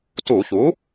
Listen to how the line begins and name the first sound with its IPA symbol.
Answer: t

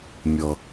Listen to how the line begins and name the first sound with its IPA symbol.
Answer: mʲ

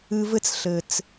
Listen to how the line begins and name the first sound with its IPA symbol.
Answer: ɨ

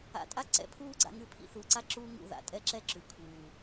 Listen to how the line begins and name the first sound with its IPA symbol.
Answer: a̰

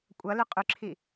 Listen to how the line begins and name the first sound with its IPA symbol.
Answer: kʷʼ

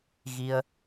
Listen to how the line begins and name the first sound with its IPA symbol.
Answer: ɣ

